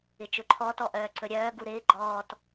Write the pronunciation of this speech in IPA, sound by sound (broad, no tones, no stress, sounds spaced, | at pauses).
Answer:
ɪ t͡ʃ ɵ ǃʰ ɔ t ɔ ʔ œː ǀ ɵ ɾʲ œː ɡ u ɾ ɪː ɡ͡ǃ ɔː t